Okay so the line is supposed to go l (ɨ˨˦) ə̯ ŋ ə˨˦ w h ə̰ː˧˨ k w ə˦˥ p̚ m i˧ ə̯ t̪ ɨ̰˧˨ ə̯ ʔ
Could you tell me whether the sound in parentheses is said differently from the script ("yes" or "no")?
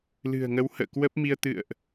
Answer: yes